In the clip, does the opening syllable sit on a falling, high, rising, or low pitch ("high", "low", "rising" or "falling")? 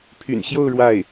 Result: low